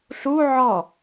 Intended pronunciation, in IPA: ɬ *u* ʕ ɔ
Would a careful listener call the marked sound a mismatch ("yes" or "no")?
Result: no